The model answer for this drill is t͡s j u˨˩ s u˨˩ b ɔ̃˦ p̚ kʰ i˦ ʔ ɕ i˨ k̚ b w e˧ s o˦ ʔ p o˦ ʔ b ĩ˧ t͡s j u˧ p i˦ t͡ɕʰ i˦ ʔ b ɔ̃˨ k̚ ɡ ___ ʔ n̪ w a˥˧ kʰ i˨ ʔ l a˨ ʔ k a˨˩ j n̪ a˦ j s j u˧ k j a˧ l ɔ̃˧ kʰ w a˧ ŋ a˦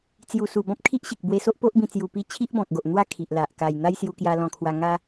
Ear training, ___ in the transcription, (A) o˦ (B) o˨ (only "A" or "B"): B